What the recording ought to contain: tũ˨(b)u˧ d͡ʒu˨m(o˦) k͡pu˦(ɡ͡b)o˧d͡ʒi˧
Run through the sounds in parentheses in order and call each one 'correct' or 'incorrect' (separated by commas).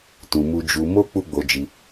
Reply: incorrect, incorrect, correct